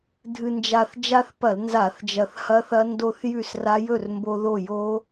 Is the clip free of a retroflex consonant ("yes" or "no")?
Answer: yes